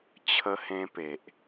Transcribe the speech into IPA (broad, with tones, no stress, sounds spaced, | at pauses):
t͡ɕʰ ə˧ h ẽ˧ p e˨ ʔ